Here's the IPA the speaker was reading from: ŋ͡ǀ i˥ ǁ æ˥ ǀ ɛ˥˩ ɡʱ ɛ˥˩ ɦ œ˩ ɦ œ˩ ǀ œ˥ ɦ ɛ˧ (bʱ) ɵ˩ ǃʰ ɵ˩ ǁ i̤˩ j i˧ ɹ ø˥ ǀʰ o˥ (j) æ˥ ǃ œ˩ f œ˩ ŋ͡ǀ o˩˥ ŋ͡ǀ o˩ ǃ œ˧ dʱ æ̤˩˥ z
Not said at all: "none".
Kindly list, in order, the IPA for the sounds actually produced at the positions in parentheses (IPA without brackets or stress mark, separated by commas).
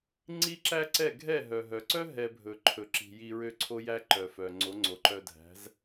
bʱ, j